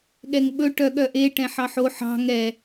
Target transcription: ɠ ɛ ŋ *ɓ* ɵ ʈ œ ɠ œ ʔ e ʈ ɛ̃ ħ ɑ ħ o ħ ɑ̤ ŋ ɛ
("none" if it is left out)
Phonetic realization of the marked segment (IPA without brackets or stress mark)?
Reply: ɓ